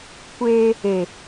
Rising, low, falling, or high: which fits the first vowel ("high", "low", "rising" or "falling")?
high